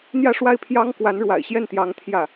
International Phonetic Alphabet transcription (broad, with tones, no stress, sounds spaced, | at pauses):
n̪ j ä˥˧ ʂ w a˥˩ ɪ̯ pʰ j ɑ˥ ŋ k w a˧˥ n ɻ w a̰˨˩ ɪ̯ ɕ j ɛ˥˩ n t̪ j ɑ˧˥ ŋ t̪ʰ j ä˥˩